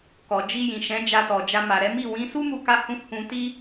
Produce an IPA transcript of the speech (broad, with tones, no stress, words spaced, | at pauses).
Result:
kɔ˨d͡ʒi˧ jĩ˨ ʃɛ̃˨˦d͡ʒa˧tɔ˨d͡ʒa˧ ma˨ɾɛ˨˦mi˦˨ wĩ˨˦ su˦mu˧ka˧hũ˧ hũ˧ti˦